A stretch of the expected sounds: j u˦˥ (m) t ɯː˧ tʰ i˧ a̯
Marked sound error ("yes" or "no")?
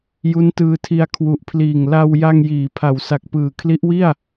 yes